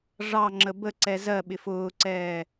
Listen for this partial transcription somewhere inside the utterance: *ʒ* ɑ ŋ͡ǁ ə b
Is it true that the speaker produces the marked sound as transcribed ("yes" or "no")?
no